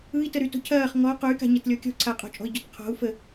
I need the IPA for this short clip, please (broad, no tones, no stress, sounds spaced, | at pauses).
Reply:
ɯ i̯ t ə ɾ y t o̤ cʰ ɐː χ ŋ ɔ q o y̯ k a̤ ɲ ɐ t lʲ ɔ kʲ ɔ̤ ǀʰ a qʼ o̤ t͡ʃʼ ɔ̤ i̯ ɟ ɔ t qʰ ɔ̤ u̯ f ə